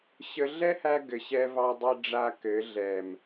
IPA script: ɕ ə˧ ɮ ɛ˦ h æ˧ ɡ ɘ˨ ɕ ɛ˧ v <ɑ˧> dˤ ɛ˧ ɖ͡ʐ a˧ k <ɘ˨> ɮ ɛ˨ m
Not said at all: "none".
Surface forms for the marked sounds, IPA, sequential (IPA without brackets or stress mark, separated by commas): ɑ˧, ɘ˨˦